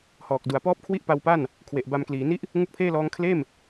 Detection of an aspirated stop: present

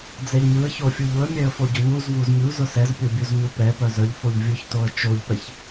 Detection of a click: absent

